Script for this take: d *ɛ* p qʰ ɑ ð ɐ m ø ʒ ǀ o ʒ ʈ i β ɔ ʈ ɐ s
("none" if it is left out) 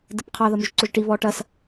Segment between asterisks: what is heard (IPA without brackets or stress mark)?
ɛ